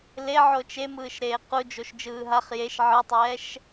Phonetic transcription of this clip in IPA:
le ʕot͡ʃemɯːʃɾeː qud͡ʒoʃ d͡ʒɯːɦaχ jeʃ ʕɯtˤɛːʃ

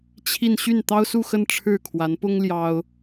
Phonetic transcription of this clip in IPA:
t͡ɕʰi˥˧n ɕy˥˩nt̪ɑ˥ʊ̯su˥˧xə˥˧n ʈ͡ʂʰɻ̩˥˩ kʰwa˧˥npʊ˥ŋ ljɑ˥ʊ̯

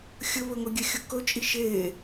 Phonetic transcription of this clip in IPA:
xʲɵβɵŋɵ ɡʲɛxʲɵkɵt͡ʃʼi ʃe

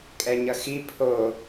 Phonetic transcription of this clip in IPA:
kʼɛɲʌxi pʰo

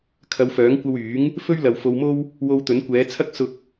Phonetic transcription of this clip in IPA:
kʰɐ˨˧wfœː˨˥ŋkʷɐ˧wyː˨˥ŋ | fɵ˥ɥlɐ˨w fo˧wmo˥w | wo˧wt̪ɵ˨˥nkʷɛː˨˥t͡sʰɐ˥k̚ sʊ˧k̚

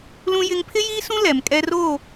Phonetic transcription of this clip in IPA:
lũ˦jɪ˦ŋ pʰɪ˦jiː˦sũ˦ lɛ˨mkʼɛ˦roː˦˨

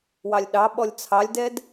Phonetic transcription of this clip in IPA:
wɑlʲɗɑ ɓɔlʲt͡sʰɑlʲdɛd

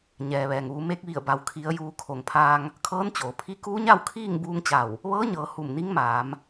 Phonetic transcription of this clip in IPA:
ɲɛː˩ʋɛː˩ŋʋu˩˧ me˧k̚ʋi˧˩ə̯ba˩w kʰi˩˧ə̯juː˩˧ kʰo˩ŋpʰaː˧ŋ | kʰɤː˧˥nt͡ɕoː˩pʰi˧˥ kuː˧˥ɲa˥˨w kʰiː˥˨ŋ buː˧˥ŋt͡ɕa˧˩w | ʋɤː˧˥ɲɤː˩˧ hu˧˩mni˧˥ŋmaː˩˧m

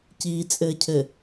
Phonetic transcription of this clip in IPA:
ciːt͡sʼɘːcʰɘ

